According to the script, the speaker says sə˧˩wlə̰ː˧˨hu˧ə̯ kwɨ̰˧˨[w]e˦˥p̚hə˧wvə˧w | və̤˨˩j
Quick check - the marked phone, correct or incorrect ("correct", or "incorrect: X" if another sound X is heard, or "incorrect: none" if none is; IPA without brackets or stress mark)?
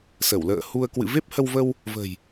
incorrect: v